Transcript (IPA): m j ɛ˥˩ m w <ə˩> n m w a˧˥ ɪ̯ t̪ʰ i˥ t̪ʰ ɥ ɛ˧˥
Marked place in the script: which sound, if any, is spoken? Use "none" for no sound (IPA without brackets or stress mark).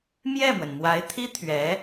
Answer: ə˩